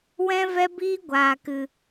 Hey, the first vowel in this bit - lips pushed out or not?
no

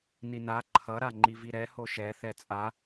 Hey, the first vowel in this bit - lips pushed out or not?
no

